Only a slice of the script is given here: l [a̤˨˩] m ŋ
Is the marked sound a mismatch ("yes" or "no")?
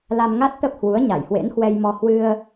yes